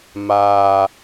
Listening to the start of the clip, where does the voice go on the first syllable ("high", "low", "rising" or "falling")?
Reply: high